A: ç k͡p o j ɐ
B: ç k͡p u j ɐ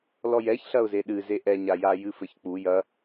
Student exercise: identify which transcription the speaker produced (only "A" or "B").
B